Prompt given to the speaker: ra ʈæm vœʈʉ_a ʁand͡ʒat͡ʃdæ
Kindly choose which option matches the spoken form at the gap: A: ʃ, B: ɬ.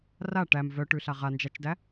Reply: B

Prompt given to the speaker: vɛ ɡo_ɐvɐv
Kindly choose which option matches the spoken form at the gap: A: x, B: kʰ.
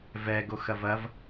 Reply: A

